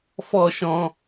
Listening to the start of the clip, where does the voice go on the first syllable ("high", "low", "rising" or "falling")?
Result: falling